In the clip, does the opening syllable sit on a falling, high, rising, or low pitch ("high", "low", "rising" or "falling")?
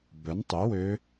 rising